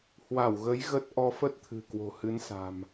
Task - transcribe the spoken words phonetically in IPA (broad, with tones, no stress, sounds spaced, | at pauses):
h w a˧˩ w ɣ ə˨˦ j ɣ ə˦˥ t̚ ʔ ɔ˧ f ə˦˥ t̚ t̪ʰ ɨ̤˨˩ k w o̤˨˩ h ɨ˨˦ n s a̤˨˩ m